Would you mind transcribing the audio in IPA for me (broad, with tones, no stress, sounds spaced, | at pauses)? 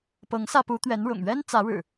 p ɤ˨˦ ŋ s ä˧ p u˨˦ t̪ ɥ ɛ˨˦ n ɻ ʊ̰˨˩ ŋ ɥ ɛ˦ n t͡s ä˨˦ ɻ ɻ̩˨˩